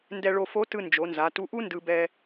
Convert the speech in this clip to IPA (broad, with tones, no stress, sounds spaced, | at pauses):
n d ɛ˧ ɭ o˧ f o˧˥ t ɯ˧ n d͡ʒ o˩˧ n z a˩˧ t u˧ ʔ u˥ n d ɯ˧ b ɛ˧